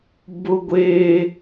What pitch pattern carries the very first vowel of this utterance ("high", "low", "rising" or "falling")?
high